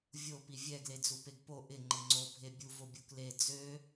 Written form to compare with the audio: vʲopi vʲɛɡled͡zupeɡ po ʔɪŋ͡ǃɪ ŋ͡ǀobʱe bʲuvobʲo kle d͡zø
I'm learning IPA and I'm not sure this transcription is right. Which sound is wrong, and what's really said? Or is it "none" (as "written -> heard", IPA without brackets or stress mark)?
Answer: none